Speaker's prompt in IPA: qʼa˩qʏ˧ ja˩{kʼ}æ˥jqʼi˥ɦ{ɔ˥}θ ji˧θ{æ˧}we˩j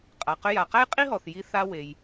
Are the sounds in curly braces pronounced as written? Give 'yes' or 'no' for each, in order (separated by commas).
no, no, no